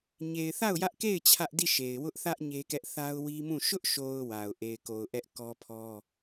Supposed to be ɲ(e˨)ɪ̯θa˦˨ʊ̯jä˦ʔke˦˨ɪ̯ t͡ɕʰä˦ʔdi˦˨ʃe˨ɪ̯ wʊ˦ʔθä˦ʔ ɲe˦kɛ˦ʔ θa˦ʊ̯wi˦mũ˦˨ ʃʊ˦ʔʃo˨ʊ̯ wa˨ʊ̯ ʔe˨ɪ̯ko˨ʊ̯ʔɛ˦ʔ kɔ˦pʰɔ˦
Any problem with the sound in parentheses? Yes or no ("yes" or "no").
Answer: no